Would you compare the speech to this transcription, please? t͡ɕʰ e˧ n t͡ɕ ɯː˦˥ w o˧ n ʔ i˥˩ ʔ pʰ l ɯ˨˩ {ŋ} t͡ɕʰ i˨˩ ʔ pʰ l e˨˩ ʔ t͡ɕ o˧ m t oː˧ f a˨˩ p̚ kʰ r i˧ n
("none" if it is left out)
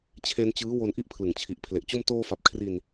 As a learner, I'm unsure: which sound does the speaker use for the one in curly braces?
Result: ŋ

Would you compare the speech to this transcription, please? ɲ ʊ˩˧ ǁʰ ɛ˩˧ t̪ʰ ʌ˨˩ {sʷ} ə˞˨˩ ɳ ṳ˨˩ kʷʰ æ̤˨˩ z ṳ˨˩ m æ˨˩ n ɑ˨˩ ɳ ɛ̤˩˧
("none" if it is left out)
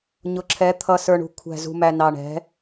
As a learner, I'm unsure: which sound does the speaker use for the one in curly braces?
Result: s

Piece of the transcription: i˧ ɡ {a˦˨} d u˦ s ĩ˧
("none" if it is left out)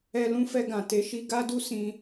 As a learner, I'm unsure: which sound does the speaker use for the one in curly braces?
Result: a˦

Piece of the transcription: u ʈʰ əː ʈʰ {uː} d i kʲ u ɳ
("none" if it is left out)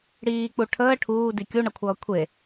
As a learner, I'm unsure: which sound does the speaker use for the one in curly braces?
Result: uː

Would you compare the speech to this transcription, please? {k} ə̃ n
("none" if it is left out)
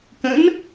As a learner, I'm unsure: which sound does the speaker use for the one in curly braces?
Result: k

